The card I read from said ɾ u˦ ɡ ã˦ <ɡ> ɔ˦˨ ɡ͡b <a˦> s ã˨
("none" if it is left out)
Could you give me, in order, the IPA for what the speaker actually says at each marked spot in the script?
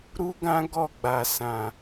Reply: ɡ, a˨

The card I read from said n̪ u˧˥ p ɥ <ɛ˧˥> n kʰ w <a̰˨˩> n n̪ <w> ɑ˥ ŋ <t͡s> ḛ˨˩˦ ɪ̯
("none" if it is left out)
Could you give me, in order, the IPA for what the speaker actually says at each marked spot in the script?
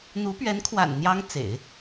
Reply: ɛ˧˥, a̰˨˩, j, t͡s

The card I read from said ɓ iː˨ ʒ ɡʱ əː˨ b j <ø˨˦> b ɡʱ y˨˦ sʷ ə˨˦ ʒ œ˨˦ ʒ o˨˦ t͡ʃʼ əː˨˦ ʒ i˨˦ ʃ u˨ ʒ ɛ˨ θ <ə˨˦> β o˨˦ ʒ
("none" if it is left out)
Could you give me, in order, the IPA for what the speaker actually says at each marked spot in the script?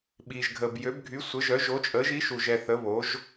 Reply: ø˨˦, ə˨˦

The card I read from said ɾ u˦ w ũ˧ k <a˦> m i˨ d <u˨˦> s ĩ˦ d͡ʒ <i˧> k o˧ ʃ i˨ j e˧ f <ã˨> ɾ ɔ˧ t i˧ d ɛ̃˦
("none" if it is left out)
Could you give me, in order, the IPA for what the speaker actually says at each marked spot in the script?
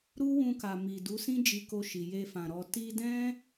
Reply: a˨, u˨˦, i˧, ã˨

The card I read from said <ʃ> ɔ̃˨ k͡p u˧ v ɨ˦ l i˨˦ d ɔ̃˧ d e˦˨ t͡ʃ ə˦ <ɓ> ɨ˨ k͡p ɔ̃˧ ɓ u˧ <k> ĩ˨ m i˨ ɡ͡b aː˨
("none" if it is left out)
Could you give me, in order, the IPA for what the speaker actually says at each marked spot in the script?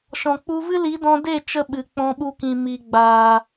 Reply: ʃ, ɓ, k

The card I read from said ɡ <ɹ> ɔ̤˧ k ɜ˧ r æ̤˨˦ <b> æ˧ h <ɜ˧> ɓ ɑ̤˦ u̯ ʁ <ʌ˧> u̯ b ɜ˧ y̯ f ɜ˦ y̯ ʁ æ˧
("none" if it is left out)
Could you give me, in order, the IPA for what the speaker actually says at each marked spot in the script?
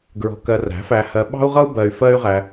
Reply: ɹ, f, ɜ˧, ʌ˦

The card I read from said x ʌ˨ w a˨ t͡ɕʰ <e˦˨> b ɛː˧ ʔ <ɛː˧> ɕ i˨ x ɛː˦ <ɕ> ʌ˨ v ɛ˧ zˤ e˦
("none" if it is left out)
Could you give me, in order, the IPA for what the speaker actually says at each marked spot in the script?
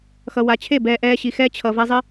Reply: e˦˨, ɛː˧, t͡ɕʰ

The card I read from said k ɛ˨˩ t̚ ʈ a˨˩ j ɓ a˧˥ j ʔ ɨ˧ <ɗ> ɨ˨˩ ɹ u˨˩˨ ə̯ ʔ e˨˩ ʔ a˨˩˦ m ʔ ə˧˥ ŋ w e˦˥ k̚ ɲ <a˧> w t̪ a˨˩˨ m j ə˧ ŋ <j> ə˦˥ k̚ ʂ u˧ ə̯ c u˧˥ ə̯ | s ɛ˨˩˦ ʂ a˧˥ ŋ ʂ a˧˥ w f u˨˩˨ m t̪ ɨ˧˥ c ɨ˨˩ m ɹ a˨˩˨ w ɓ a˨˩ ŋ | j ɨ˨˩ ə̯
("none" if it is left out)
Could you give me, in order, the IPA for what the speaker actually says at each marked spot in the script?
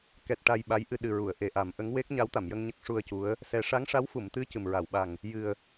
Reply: ɗ, a˧˥, ɲ

